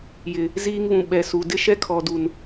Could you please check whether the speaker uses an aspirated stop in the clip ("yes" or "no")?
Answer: yes